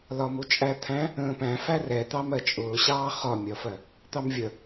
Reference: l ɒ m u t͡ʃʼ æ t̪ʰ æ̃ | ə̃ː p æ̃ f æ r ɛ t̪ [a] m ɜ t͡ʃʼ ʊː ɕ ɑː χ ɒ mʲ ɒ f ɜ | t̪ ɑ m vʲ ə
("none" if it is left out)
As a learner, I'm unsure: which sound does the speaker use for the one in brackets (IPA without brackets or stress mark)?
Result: ɑ